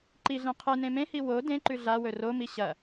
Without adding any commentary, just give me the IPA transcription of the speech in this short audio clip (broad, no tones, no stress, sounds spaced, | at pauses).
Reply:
ǃ i ɮ ẽ qʰ ɨ n ẽ m ẽ h i w o d ẽ ǃ ʉ ɮ a w ɵ r o m i ɕ ɐ